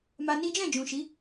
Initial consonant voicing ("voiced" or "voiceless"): voiced